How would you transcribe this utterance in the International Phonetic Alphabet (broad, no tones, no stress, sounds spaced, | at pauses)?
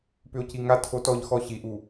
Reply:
p ʏ o̯ c i ŋ a tʰ o t ɔ ʎ x ɔ ɕ i ʔ u